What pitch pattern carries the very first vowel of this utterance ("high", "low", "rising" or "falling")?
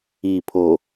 low